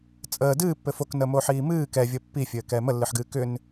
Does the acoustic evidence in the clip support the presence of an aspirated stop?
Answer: no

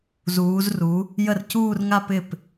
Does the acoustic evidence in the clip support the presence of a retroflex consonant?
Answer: no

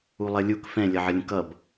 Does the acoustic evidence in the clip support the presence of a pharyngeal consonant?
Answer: yes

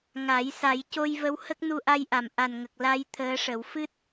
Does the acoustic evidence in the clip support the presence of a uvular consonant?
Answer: no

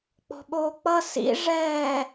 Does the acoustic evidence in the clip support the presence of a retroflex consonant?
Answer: yes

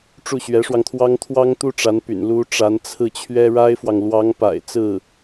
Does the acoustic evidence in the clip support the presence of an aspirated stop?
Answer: yes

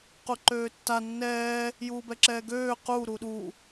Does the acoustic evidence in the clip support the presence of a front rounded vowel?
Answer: yes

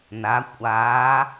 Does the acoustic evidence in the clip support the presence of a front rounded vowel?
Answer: no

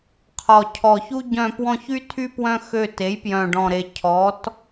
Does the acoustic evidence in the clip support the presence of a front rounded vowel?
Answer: yes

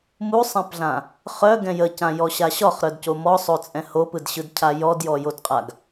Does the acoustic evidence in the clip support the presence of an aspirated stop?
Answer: yes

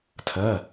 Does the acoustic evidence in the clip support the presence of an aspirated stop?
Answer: yes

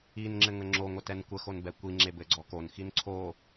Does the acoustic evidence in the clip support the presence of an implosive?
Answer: no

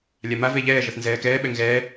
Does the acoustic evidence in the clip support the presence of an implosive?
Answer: yes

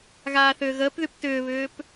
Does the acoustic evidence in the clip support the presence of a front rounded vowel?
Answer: yes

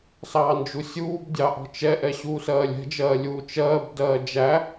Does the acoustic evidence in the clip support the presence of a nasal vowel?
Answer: no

